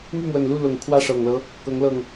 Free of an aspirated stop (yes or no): no